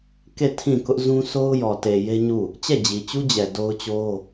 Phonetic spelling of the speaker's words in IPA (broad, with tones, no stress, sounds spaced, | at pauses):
k e˦˨ tʰ ĩ˦˨ k ʊ˦ ʔ z ũ˦ sʰ o˦ ʊ̯ j ɔ˨ t e˨ j e˦ ɲ u˦˨ | t͡ɕ ɛ˦˨ d͡ʑ i˨ t͡ɕ u˦ d͡ʑ ɛ˨ d o˦ ʊ̯ t͡ɕ o˦